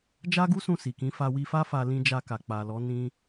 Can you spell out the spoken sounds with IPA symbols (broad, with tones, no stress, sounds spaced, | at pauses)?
d͡ʒ a˦ ɡ u˦ s ũ˦˨ s i˨ k ĩ˨˦ f a˧ w i˧ f a˦ f a˧ l ĩ˦ d͡ʒ a˧ k a˨ k͡p a˨ l ɔ˨˦ n ĩ˦